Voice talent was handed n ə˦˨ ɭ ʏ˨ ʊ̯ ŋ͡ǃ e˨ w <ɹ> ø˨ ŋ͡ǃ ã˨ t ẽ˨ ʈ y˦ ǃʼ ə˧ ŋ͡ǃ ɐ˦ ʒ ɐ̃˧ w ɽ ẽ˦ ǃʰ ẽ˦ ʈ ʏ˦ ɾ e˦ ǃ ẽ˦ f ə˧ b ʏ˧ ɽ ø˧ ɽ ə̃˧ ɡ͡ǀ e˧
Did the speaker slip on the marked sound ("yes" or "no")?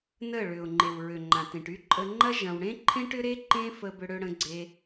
no